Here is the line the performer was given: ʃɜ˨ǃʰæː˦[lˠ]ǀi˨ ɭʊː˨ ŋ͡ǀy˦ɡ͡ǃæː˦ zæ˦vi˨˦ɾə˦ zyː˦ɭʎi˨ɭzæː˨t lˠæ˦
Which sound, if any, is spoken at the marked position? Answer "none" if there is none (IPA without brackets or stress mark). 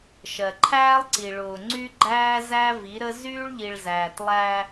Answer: lˠ